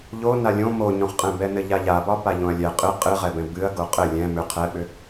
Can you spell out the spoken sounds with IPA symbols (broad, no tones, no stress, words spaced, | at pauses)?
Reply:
ʎo nalʲõ moɲõχqʼɛ̃bɛ nɘʎaʎabɒ paʎõɐ̯lʲɛ qʼɨ qʼɨʁɛbɛ̃ bɨɐ̯ ɡoqʼɘ lʲɛ̃ mʏ qʰɛɓʏ